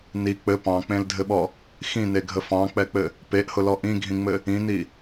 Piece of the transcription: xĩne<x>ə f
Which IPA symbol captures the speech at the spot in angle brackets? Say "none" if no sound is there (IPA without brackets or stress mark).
ɡʱ